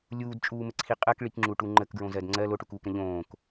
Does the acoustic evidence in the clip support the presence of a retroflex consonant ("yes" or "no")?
yes